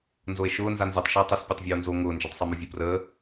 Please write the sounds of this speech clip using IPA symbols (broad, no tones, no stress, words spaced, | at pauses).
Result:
nzoe̯ʃʊː nzanzɛtˤ ʃəːtˤəs pʲetˤvʲəːo̯nzo ŋʊː nd͡ʒəːtˤsˤemovʲʊ prəː